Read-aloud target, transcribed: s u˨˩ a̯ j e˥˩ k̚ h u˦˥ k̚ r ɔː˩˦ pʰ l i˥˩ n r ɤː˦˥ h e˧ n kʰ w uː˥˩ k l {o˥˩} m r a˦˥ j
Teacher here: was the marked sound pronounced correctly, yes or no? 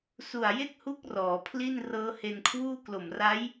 no